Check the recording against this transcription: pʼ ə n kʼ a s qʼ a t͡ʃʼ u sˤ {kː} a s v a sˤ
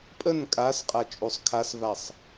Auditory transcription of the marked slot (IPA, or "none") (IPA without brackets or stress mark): kʰ